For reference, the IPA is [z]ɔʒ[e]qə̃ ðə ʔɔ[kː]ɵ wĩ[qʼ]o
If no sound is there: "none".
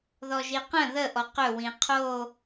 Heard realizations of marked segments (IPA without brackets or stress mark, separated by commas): ð, i, q, qʰ